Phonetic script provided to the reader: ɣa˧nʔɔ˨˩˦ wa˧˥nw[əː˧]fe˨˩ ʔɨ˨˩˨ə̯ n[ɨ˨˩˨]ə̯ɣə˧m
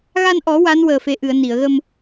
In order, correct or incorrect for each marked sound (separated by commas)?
incorrect, incorrect